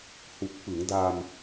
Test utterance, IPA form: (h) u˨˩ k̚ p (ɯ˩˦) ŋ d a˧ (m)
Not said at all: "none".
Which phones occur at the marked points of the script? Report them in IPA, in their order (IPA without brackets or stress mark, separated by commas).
h, ɯ˩˦, m